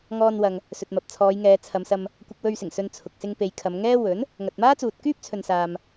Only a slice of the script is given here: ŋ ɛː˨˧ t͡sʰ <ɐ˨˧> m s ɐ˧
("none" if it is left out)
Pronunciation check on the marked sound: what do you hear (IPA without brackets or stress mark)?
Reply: ɐ˨˧